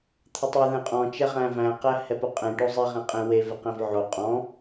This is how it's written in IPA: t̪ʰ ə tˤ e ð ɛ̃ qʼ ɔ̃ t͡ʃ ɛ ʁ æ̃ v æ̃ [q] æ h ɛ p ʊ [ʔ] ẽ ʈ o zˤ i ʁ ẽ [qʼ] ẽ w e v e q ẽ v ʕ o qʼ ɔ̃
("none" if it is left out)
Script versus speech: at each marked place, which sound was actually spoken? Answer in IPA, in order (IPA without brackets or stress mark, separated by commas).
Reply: q, qʼ, qʼ